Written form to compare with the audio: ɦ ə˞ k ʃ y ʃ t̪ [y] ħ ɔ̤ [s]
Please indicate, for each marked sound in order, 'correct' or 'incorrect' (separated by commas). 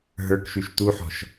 incorrect, incorrect